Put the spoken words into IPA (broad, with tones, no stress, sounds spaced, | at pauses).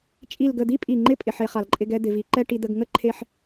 t͡ʃʼ i˧˩ l ɡ ə˧˩ d̪ i˥ pʼ i˧˩ ŋ͡ǃ ɪ˥ pʼ ɪ˩˧ ħ e˩˧ χ a˩˧ l ǃʼ ɪ˧ ɡ ɛ˥˧ d̪ ɪ˩˧ v i˩˧ ǃ ɛ˥˧ ʈ i˧ d̪ ə˧ ɡ ŋ ə˥˧ ǃʰ e˧ ħ